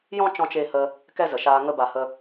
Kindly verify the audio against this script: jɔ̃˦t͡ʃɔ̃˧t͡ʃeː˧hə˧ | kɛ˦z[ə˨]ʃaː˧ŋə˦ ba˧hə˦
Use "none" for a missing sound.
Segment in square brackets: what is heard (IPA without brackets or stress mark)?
ə˨